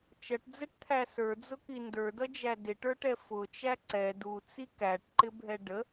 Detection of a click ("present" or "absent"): present